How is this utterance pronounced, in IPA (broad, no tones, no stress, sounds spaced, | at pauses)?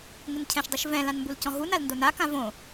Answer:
ŋ ɪ n cʰ ɛ̃ ʃ dˤ i ʃ v ɛ̃ l ã n m b u l c ɔ̃ ɦ u n a l n d o n a k ã v õ